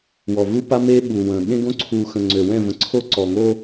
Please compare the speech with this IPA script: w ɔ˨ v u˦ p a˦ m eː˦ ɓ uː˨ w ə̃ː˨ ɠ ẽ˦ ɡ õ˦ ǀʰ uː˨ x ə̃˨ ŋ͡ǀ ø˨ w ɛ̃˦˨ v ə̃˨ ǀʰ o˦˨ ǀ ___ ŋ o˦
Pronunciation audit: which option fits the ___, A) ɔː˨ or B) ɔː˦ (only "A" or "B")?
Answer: A